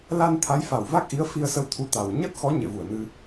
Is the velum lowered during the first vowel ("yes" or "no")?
no